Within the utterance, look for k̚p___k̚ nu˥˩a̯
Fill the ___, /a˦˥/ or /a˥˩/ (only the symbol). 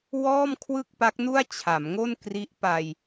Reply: a˦˥